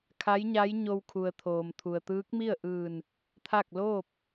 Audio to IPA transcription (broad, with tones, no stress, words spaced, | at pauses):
kʰa˧˥jɲa˧˥j ɲo˧wkʰu˩ə̯t̪ʰoː˩m t̪ʰu˩ə̯t̪ɯː˧˥k̚mi˥˨ə̯ʔɯː˧˩n | t̪ʰa˥˨k̚ loː˥˨p̚